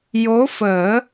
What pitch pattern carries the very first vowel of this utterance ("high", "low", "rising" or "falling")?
rising